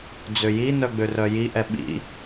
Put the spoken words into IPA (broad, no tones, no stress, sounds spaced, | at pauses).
d͡z ø j i n œ ɡ͡b ø r œ j i ʔ ɛ ɓ ḭ